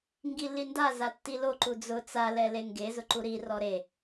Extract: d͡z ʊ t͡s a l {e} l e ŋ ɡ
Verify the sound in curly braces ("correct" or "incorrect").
incorrect